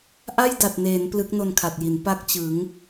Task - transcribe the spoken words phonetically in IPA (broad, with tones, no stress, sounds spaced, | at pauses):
ʔ a˥˩ j d a˨˩ t̚ n eː˩˦ n p l ɯ˦˥ k̚ n o˧ n kʰ a˨˩ t̚ j i˩˦ n p a˥˩ k̚ t͡ɕ ɯ˩˦ ŋ